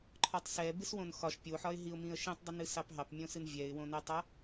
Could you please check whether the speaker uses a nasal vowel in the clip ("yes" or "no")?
yes